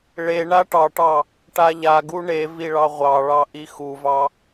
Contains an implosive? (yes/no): no